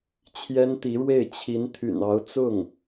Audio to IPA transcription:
t͡ɕʰ j ɛ˥ n t̪ i˧˥ ɻ w e˥˩ ɪ̯ t͡ɕʰ i˧˥ n t̪ʰ y̰˨˩ n ɑ˧˥ ʊ̯ t͡s ʊ˥˩ ŋ

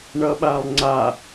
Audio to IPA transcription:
ɳ ʌ ɓ a lˠ ŋ͡ǀ a

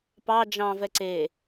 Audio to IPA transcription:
p ɑ d͡ʒ ɑ̃ v ɛ ǀ e

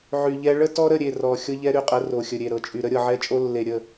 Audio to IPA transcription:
ʕ y˨ ʎ ɛ˦ ɭ ə˦ t ɔ˦ ɾ ə˦˨ ɾʲ e˦˨ r ɔ˨ xʲ ɤ˦ ʎ ɛ˦ ɾ y˦ qʼ ə˨˦ r o˨ xʲ ə˨ ɾʲ e˨ ɾ ɤ˨ t͡ʃʼ y˨ ɾ ə˦ ɾʲ ɤ˨ ʕ ɛ˦ t͡ʃʼ o˦ lː e˨ ɾʲ ə˦˨

